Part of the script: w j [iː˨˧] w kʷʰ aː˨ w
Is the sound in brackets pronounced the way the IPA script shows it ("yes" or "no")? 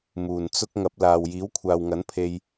no